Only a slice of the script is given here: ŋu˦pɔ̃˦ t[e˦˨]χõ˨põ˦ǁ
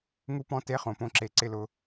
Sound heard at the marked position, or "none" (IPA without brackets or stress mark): e˦˨